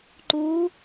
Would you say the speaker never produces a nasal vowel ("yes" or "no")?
yes